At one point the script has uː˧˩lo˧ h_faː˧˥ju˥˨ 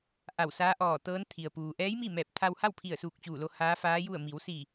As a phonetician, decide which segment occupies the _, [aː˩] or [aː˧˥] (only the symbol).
aː˧˥